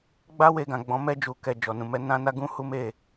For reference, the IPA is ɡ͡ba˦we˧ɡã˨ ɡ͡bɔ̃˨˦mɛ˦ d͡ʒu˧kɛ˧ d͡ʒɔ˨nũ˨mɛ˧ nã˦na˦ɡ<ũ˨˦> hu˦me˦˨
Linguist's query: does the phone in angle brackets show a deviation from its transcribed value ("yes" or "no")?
yes